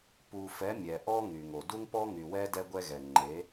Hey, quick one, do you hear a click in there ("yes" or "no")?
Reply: yes